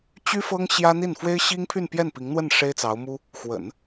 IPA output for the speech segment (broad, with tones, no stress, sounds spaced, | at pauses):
t͡ɕ y˥ f ɤ˥ ŋ ɕ j ä˥ n̪ i˥˩ n f w e˥ ɪ̯ ɕ i˥ ŋ pʰ y˥˧ n p j ɛ˥˩ n p i˧˥ ŋ n̪ w ə˥˩ n ʂ e˥ ɪ̯ t͡s ɑ˧˥ ʊ̯ m u˥ | x w ə̰˨˩˦ n